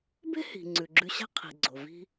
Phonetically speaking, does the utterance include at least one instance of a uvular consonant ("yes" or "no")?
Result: yes